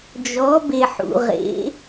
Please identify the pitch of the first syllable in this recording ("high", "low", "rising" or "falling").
rising